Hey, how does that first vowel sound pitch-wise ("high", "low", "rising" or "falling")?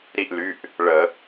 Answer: falling